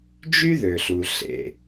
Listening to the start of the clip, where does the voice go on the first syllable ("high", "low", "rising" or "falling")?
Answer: high